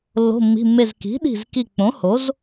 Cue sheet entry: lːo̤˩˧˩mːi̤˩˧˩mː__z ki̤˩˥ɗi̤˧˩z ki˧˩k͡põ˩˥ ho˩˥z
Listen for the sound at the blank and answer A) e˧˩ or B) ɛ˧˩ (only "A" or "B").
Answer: A